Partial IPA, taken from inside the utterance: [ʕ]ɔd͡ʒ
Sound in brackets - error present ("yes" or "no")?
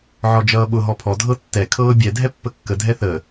no